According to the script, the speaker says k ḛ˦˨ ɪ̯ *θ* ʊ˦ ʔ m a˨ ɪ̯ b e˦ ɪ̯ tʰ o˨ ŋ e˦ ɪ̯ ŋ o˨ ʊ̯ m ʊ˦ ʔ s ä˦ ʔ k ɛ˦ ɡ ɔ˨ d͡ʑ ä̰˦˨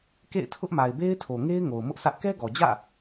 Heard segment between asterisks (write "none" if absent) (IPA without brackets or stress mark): tʰ